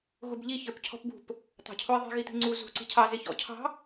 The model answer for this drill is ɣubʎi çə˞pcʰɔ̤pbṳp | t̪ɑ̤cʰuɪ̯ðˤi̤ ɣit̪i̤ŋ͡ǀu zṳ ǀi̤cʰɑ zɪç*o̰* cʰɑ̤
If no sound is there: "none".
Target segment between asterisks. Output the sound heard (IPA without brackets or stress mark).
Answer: ɔ̰